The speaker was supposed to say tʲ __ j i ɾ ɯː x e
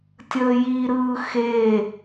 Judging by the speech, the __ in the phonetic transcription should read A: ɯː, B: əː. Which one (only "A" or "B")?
B